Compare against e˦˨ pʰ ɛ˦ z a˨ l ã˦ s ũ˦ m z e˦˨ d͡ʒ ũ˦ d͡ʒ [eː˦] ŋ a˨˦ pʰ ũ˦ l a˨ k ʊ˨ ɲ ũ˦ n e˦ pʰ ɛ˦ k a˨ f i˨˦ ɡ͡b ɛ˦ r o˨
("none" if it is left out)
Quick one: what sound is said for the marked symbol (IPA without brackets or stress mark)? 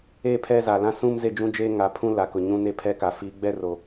e˦